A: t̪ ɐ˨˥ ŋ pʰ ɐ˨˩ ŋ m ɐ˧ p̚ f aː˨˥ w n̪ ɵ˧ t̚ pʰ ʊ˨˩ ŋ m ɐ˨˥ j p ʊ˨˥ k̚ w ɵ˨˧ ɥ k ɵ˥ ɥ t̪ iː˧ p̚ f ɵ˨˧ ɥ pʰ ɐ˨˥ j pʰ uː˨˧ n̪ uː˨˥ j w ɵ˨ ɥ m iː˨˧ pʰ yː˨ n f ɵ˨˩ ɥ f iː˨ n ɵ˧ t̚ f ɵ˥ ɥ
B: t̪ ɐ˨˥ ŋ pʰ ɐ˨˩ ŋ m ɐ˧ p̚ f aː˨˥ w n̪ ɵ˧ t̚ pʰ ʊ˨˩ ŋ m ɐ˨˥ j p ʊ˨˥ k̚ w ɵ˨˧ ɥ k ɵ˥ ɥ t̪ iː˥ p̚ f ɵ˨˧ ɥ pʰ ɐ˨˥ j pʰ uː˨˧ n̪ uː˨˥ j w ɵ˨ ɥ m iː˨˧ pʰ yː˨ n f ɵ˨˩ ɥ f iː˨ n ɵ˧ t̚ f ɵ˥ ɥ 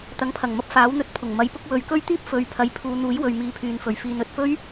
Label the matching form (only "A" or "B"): B